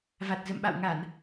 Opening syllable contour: low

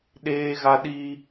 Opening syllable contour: high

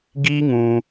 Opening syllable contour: high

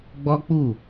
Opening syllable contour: high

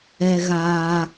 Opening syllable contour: high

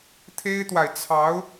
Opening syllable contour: high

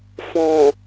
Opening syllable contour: low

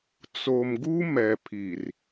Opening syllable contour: low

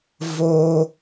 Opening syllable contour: high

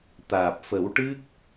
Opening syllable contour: low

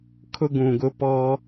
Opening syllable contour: high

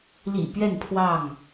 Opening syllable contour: low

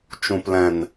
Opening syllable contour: low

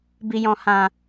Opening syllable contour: low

